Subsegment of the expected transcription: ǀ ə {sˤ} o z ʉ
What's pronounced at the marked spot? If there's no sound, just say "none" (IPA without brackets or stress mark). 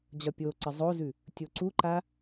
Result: zˤ